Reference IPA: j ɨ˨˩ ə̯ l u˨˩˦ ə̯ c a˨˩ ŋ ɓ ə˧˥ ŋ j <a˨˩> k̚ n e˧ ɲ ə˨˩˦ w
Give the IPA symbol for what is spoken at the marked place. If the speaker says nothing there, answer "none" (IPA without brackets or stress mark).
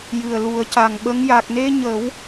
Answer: a˨˩